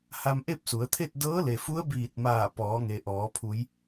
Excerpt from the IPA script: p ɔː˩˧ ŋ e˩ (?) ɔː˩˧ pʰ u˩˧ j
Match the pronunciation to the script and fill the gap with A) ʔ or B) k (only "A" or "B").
A